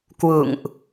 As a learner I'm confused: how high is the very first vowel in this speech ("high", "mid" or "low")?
high